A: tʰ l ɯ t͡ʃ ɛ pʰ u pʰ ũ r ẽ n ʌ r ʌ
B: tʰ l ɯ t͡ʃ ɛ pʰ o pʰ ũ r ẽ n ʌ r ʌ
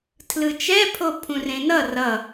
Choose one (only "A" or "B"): B